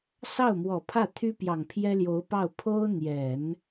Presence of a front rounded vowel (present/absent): present